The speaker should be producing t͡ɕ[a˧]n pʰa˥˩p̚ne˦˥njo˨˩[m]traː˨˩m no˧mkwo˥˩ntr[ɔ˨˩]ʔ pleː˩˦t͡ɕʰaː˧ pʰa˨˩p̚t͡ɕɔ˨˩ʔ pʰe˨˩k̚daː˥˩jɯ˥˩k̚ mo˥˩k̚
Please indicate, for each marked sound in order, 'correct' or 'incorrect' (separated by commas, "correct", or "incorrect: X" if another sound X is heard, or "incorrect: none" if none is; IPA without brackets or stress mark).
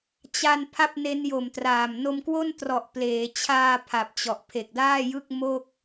correct, correct, correct